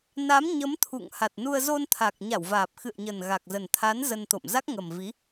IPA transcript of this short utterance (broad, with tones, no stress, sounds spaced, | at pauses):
n a˨˦ m ɲ ə˨˦ m t̪ʰ ṵ˧˨ ŋ h a˨˩ t̚ n u˧ ə̯ z o˧ n t̪ʰ a˨˩ k̚ ɲ a˧˩ w v aː˨˩ p̚ x ɨ̰˧˨ ə̯ ɲ ə˨˩ n ɣ a˨˩ k̚ z ə˨˩ n t̪ʰ a˨˦ n z ə˧ n t̪ o̰˧˨ m z a˦˥ k̚ ŋ ə˨˩ m v i˨˦